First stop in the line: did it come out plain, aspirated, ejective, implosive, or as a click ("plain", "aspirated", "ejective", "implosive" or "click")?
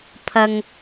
aspirated